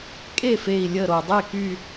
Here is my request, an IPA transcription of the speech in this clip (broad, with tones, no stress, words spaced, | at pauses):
kʼe˥˩fe˧˩i̯ lʲə˧˩ɾo˩ dˤe˥˩ky˧˩